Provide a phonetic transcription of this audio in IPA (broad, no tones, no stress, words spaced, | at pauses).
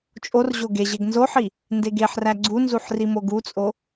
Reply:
t͡ʃʼorʑo ɡeʑeɡ nzoħi | ndeɡeħræ ɡ͡ǀunzuħ rimoɡut͡sʼo